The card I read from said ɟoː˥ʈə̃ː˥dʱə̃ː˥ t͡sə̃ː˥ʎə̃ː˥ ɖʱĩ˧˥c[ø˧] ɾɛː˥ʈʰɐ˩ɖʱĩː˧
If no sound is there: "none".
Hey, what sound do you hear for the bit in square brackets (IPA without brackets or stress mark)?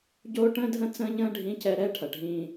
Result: ɛ˧